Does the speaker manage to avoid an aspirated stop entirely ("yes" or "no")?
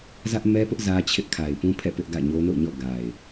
no